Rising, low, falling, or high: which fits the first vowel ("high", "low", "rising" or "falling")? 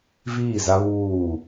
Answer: falling